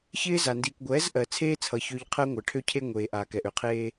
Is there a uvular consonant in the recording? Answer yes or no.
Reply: yes